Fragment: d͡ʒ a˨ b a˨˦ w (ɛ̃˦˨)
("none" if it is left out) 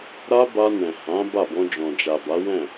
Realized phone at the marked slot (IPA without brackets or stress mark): ɛ̃˦˨